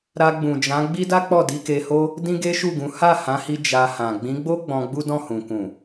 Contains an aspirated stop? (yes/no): no